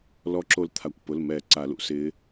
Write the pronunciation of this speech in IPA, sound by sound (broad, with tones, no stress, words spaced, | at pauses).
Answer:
lɔ˧˥ǁo˧lt̪ʰa˩˧˩kʷpʊ˩˧˩l mɛ˨˩˦ ǀa˨˩˦lṵ˧sɪː˧˥